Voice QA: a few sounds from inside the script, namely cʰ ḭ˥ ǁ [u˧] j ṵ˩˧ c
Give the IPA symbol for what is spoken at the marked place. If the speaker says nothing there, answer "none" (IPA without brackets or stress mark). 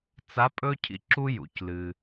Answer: u˥